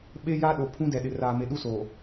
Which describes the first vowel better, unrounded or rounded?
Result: unrounded